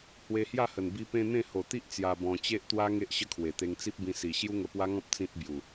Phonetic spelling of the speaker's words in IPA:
h w e˧ h j a˥˧ h ə˨˩ n b i˧ p ẽ˧ n̪ ẽ˥˧ h o˨˩ t̪ i˦ ʔ t͡s j a˧ b ɔ̃˧ t͡ɕ e˦ ʔ t̪ w a˦ ŋ e˦ ʔ ɕ ə˦ kʰ w e˨˩ t̪ e˧ ŋ t͡s i˦ p̚ b ĩ˧ s i˨˩ ɕ j u˦ ŋ ə˧ p w a˦ ŋ ɔ̃˦ p̚ t͡s ĩ˦ t̚ b j u˨˩

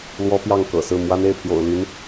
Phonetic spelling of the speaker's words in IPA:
l w ɔ˥ p j ɑ˥˩ ŋ k ɤ̰˨˩ s ɹ̩˥˩ m w a˥ n e˥˩ ɪ̯ pʰ j o̰˨˩ ʊ̯ l y˧˥ n

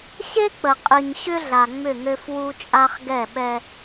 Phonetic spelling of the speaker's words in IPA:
ɕ e˦ k͡p ə˨ qʼ ɨ˨ ɲ ɕ ʏ˦ ɮ a˨ ŋ͡m ʏ˦˨ ŋ ø˦ f w u˦ t͡ʃʼ a˦ χ ɡ ɛ˦˨ ɓ ɛ˦

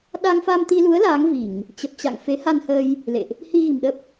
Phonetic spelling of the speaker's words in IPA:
ɗ a˧ ŋ f a˧ m t̪ i˧ l u˨˦ ə̯ l aː˨˦ ŋ v i˧˩˨ ŋ | t͡ɕ ə˨˩ p̚ t͡ɕ a̰˧˨ ŋ f e˨˦ h a˧ n h əː˧ j | l ḛ˧˨ ʔ | h i˧ ɣ i̤˨˩ m ɗ ə˦˥ p̚

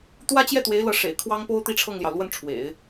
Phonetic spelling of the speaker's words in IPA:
t̪ w ä˥ t͡ɕ j ɛ˥˩ t̪ w e˧˥ ɪ̯ l ɤ˧˥ ʂ ḛ˨˩ ɪ̯ kʰ w ɑ˥ ŋ p o˥ ʊ̯ t̪ i˥˧ ʈ͡ʂʰ ɤ˥˩ ŋ l j ɑ˩ ʊ̯ l w ə˥˩ n ʈ͡ʂʰ w ḛ˨˩˦ ɪ̯

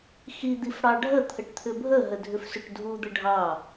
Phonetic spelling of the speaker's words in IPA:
x i d̪ i f ɽ ɑ ɖʱ ə t̪ʰ ə ʈ t̪ʰ ʏ bʱ ə ɦ ə dʱ ʏ f s ʏ ʈ dʱ u d̪ ə ɖʱ ɑ

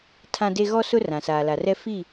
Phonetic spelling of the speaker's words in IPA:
tʰ ã˦ d e˦ ɣ ɔ˦ s ʊ˦ r ã˨ s aː˨ l a˨ r ɛ˦ f i˦˨

